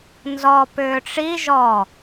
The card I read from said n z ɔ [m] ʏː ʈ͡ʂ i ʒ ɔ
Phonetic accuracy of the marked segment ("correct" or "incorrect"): incorrect